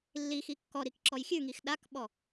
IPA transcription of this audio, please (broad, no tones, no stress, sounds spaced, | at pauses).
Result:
lː i x i kː ɔ ɾ i k ǁ ɔ j xʲ ʉ ŋ i x ɗ a k ɓ ɔ